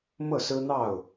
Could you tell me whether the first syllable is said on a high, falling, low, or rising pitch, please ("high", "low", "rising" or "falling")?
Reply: falling